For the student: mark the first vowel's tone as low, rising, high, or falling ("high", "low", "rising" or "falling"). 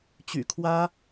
low